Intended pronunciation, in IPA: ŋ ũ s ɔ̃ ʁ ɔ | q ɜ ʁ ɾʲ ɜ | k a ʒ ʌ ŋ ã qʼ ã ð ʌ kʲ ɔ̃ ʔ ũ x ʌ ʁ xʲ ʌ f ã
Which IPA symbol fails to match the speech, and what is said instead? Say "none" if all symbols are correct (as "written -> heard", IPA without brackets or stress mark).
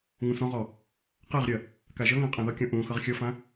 none